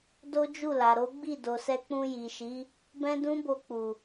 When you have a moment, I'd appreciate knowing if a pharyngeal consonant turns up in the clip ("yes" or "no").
no